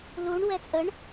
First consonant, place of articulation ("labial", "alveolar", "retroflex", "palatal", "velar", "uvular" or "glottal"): alveolar